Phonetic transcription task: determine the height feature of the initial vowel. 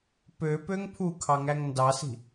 mid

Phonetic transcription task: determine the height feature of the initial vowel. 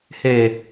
mid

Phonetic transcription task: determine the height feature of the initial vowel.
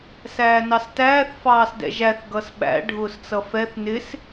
low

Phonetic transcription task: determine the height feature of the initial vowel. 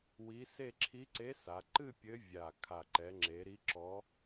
high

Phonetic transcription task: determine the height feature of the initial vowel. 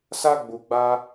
low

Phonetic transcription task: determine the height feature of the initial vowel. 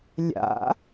low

